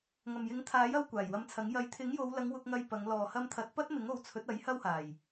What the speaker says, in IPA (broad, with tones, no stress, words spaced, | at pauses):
ŋɐ˨˩mjɪ˨˥ŋt̪ʰaː˨˥j ɐ˧w kʷaː˨˩jwɐ˧mt͡sʰɐ˨˥ŋ jɐ˨˥j t̪ʰɪ˨˥ŋjo˨˧wlɐ˨˧ŋ wʊ˧k̚ŋɐ˧j pɐ˨˧ŋ lɔː˨˩hɐ˧mt̪ʰɐ˨˥t̚ pɐ˥t̚mɪ˨˥ŋo˨˧wt͡sʰɵ˨˥t̚ ɐ˨˥j hɐ˥whaː˨˩j